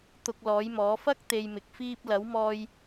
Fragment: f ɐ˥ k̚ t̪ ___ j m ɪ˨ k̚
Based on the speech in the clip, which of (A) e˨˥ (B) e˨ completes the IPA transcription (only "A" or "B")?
B